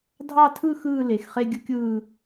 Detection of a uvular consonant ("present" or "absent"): present